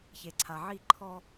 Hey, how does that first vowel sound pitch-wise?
low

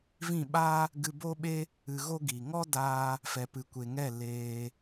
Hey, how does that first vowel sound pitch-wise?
falling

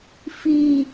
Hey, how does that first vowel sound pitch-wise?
falling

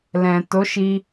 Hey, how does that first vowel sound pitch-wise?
low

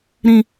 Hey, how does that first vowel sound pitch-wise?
low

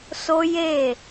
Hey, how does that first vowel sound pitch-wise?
high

